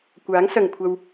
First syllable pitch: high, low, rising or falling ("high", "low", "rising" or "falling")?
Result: rising